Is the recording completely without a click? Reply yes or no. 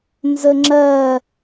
no